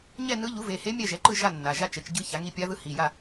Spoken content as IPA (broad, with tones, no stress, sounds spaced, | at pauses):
ɲ ɛ˥˨ n ɯ˧˥ ʎ u˩˥ v e˩˧˩ h e˧˥ mʲ ɛ˥˨ ʒ ɛ˩˥ ǃ ɯ˥˨ ʒ a˥˨ nː a˩˧˩ ʒ a˥˨ t͡ʃ ɛ˩˥ t͡ʃ ɟ ɯ˧˥ ç a˩˥ ŋ i˧˥ pʲ a˧˥ ð ɯ˧˥ h i˩˧˩ j a˥˨